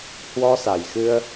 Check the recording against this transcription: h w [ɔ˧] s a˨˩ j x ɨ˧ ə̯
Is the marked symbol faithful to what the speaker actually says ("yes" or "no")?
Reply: yes